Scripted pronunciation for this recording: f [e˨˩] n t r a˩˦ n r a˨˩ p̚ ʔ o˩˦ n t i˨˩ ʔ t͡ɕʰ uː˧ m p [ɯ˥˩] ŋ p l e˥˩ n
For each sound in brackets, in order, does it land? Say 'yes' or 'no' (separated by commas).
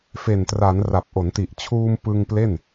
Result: yes, no